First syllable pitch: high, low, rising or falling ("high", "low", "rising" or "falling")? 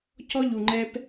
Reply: high